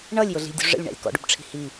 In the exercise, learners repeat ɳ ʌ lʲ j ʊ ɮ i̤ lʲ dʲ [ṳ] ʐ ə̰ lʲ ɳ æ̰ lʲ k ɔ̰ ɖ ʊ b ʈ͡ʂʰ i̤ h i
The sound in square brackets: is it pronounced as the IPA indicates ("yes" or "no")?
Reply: yes